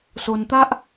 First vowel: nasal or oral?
oral